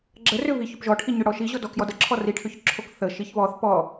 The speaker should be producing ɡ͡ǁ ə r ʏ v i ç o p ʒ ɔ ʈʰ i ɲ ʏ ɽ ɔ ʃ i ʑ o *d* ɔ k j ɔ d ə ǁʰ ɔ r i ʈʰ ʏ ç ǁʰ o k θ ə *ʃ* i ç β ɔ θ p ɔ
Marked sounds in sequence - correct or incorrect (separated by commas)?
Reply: correct, correct